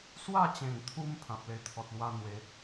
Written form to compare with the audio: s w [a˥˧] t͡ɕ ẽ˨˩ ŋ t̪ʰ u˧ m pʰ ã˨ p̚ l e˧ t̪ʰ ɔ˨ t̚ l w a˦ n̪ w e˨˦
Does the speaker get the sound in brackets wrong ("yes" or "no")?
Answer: no